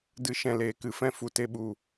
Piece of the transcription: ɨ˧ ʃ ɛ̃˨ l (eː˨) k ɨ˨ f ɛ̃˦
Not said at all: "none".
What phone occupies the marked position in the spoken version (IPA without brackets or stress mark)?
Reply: eː˨